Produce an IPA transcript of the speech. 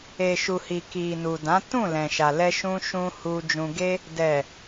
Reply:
e˨ʃu˨hi˨ ki˨nu˨dã˨˦ tũ˦˨lɛ̃˨ʃa˨ lɛ˧ʃũ˧ʃũ˧ hu˧d͡ʒũ˧ɡe˦ | dɛ˨

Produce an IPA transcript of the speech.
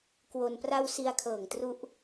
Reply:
kwo˧n pra˧w si˧a̯kʰɤː˨˩ŋtru˦˥ʔ

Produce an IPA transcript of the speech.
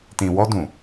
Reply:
tĩ˨wɔ˧dũ˨

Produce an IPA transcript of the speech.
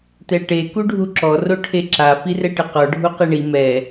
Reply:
tɛʈe kuɖʱuǁɔ roʈʰeǁa firɛʈɪqɔ ɖʱuqeɳi mɛ

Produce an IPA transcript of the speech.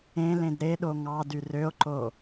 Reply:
ẽlẽd ɾeɗo ŋɑdy røo̯ǃo

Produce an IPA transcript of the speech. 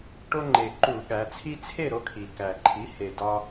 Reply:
ʈo˦ŋ͡ǃe˨˩ǃu˧˩˧ɠæ˩˧ t͡sʰi˦t͡sʰe˥˨ɾo˨˥ kʰi˨˩ kæ˨˩ǃʰi˨˥ he˨˩ dɒ˦

